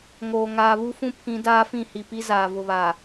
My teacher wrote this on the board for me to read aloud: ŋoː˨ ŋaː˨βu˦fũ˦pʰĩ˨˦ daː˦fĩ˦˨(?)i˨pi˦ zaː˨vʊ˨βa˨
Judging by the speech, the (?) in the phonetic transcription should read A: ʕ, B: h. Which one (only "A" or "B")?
B